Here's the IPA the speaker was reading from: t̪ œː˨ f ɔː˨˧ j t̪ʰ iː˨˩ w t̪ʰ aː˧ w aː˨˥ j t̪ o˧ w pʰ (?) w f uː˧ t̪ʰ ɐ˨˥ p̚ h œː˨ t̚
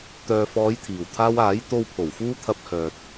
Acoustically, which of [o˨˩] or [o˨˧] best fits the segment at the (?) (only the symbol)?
o˨˩